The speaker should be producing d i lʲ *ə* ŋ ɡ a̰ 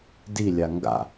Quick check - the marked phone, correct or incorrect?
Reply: incorrect